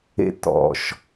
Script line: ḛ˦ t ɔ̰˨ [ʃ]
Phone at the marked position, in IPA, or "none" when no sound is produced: ʃ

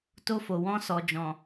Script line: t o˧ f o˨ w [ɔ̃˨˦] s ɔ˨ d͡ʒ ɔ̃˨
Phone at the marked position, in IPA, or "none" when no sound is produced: ɔ̃˧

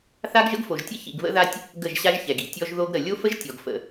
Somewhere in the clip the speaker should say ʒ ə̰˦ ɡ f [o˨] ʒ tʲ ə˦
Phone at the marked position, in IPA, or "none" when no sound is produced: o˨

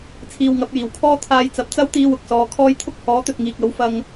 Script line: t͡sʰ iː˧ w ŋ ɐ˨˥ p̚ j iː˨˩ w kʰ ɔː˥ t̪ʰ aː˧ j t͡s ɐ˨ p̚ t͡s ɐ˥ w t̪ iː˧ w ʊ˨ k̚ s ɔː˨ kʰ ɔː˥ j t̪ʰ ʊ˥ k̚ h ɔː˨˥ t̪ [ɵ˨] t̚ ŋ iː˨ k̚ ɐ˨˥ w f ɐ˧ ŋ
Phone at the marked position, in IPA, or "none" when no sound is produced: ɵ˨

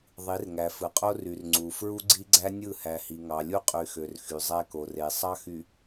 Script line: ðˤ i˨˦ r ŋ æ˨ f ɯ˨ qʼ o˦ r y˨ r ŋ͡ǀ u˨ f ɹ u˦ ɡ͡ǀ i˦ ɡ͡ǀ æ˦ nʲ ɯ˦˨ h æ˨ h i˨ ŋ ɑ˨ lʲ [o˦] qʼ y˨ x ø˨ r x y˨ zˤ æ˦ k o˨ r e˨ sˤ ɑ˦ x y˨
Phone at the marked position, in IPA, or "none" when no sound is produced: u˦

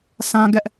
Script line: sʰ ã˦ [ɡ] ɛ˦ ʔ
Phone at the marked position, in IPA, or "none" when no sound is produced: ɡ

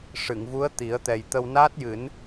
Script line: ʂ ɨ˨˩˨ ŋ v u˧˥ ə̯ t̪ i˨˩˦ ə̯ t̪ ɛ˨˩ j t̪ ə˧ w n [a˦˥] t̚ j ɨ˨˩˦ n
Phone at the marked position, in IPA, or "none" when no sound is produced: aː˦˥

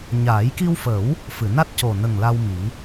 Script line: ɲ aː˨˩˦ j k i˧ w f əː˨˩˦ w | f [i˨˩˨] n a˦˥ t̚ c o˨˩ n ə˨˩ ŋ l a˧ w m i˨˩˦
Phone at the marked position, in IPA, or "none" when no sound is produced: ɨ˨˩˨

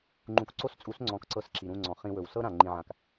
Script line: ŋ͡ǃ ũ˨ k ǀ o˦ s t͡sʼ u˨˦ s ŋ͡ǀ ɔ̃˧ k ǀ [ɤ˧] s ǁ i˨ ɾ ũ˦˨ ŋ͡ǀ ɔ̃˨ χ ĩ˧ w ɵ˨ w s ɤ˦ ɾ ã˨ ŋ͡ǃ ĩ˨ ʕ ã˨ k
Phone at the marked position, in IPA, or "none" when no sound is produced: ɤ˧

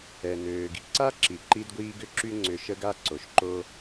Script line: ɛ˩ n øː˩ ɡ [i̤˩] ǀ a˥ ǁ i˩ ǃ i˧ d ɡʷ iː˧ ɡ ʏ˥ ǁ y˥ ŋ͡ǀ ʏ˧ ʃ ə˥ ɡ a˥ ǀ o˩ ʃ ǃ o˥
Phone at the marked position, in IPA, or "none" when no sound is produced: i̤˩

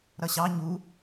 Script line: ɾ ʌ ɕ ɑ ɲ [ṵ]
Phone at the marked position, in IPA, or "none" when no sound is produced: u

